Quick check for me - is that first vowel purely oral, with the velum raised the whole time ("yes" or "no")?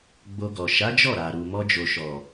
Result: yes